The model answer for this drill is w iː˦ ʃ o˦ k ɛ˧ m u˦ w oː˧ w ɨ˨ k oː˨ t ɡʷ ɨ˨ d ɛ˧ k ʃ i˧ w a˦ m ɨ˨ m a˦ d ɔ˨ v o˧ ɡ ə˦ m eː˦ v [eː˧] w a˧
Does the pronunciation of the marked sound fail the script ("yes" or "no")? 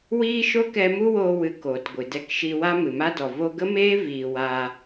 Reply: yes